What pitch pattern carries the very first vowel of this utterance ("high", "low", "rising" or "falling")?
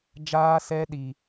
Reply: high